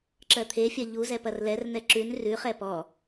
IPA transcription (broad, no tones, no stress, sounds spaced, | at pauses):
ǁ ɜ t̪ʰ e fʲ ɜ ʎ u z ɛ p ɐ r l ɛ r n ɛ ǁ ʉ n r ʉ χ ɛ p ɔ